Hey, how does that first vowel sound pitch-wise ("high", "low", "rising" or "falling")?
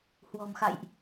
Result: low